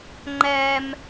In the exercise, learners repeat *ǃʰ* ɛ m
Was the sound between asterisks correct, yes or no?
no